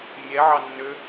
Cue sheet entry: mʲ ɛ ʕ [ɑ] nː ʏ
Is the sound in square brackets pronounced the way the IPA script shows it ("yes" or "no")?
yes